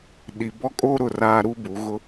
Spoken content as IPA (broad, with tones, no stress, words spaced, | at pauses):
ɗi˨bɔ˦kʼoː˦ ɾʊ˦˨raː˦ɾu˦bu˨˦ ɣʊ˦